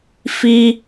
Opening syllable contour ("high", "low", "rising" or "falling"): high